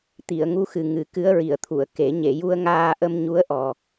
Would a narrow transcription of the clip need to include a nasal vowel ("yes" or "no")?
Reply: no